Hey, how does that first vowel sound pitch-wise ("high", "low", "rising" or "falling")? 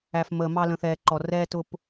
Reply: low